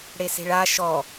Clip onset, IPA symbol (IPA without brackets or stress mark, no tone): ɽ